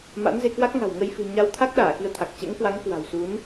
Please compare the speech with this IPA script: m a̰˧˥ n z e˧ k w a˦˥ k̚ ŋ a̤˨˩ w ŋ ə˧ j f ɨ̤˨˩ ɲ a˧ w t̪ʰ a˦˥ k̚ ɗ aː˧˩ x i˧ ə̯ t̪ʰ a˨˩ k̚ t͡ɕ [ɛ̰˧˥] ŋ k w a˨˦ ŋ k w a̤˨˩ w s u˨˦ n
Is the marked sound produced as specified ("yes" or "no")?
yes